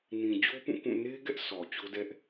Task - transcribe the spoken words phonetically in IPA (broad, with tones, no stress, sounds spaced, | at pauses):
n ĩ˨ d͡ʑ o˦ p ũ˦˨ k ũ˦˨ n e˦ ɡ ɛ˦ ʔ s ɔ˨ t͡ɕ o˦ d ɛ˦ ʔ